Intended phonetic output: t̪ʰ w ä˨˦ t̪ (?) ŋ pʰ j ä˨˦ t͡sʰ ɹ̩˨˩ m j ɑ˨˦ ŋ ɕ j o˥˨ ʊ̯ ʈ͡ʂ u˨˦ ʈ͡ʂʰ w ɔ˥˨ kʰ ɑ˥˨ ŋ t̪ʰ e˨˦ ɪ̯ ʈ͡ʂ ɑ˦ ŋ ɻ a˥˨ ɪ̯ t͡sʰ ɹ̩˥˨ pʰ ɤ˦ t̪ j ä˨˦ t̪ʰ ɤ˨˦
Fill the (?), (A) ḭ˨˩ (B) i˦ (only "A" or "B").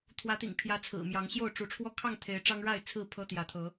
A